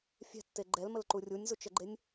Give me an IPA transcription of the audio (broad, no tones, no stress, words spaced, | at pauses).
fʲɛ̤tːe ɡ͡ǃɛlməlǃu rʲunʲzut͡ʃəɡ͡ǃenʲ